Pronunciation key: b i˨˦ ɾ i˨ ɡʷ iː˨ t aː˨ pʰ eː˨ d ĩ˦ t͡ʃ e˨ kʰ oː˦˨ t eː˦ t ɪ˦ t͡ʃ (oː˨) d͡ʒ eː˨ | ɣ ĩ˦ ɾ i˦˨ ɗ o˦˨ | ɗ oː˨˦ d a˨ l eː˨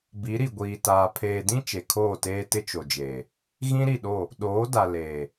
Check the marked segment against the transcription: incorrect: o˨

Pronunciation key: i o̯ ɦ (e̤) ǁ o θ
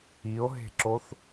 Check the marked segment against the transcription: correct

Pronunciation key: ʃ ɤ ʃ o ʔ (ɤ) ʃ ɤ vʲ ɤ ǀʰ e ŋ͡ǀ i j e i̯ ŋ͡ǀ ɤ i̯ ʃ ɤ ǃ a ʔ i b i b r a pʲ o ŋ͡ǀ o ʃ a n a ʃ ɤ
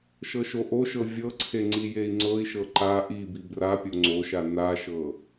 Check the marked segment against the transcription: incorrect: o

